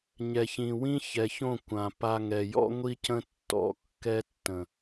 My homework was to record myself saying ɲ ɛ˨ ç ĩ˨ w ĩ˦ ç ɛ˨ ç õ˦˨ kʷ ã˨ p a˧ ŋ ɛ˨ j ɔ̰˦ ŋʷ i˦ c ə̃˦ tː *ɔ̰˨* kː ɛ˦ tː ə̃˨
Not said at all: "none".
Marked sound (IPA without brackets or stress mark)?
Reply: ɔ̰˨˦